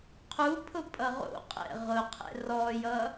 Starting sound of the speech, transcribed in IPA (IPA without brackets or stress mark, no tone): qʰ